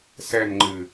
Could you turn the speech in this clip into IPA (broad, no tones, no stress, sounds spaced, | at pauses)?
s ɛ n ŋ͡ǃ ɨ